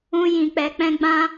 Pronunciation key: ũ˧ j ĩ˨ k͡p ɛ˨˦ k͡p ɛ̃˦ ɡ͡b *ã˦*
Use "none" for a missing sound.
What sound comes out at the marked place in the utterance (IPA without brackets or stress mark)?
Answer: ã˦